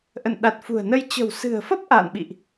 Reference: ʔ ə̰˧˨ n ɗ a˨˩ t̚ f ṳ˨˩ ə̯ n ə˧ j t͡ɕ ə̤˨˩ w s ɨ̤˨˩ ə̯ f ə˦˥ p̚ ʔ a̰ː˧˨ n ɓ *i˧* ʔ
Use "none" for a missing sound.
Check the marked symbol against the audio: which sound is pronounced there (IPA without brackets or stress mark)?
ḭ˧˨